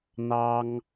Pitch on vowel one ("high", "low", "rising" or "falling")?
high